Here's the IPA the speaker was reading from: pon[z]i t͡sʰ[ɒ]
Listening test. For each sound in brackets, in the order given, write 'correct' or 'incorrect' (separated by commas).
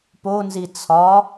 correct, correct